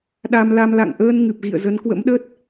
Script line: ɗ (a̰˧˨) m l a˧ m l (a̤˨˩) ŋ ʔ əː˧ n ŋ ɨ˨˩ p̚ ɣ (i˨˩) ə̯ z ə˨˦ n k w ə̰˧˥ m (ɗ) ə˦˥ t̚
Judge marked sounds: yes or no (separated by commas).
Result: no, no, no, yes